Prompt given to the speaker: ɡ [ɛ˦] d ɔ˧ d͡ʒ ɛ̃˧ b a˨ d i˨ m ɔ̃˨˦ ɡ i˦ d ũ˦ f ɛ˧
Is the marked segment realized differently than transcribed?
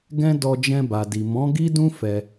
yes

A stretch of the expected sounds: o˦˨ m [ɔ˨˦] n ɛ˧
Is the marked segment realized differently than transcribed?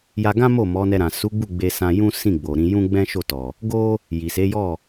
no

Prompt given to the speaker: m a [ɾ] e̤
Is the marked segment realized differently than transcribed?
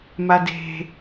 yes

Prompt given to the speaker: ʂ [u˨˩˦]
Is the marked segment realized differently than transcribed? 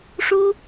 yes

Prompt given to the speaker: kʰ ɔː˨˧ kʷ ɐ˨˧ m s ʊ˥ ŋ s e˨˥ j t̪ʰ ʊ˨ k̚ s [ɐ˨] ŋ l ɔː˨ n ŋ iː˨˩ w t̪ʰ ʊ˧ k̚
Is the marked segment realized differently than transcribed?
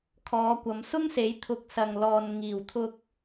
no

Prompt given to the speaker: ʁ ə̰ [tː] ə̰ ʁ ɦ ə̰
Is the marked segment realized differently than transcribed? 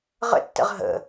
no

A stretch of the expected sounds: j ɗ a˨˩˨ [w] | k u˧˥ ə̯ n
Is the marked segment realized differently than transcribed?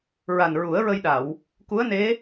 no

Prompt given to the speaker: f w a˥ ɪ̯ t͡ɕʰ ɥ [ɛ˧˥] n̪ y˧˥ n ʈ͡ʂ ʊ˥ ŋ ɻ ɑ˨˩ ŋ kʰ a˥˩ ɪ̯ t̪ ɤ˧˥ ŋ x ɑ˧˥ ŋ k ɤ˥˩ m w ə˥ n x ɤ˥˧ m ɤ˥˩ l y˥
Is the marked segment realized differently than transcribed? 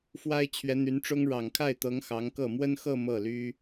no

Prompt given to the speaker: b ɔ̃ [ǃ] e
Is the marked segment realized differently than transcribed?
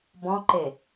no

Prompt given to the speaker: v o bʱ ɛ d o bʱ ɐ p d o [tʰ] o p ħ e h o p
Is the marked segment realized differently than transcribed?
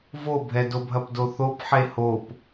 yes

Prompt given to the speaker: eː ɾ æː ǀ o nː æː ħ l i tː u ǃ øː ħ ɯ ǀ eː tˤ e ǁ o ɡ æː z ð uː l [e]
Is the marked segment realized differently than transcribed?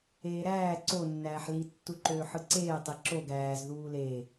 no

